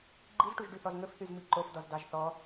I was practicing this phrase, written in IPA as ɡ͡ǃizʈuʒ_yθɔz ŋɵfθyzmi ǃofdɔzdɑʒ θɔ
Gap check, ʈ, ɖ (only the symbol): ɖ